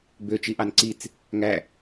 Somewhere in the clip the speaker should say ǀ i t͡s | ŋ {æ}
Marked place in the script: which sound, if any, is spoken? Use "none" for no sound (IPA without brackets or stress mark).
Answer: æ